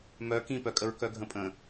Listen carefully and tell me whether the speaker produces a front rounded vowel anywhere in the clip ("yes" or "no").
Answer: yes